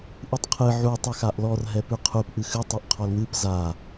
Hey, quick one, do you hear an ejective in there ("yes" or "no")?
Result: no